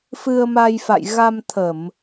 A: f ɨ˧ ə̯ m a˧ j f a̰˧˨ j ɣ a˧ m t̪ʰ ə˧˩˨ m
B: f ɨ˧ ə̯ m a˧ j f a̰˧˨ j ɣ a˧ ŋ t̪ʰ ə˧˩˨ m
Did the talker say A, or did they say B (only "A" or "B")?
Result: A